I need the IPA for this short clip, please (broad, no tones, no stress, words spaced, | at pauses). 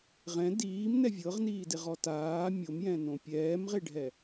ʁɛ̃ diːmnɛ vʲɤʁniːdeʁɔ taː mʲomjɛ̃nõ pʲɛːmʁeɖʱɛ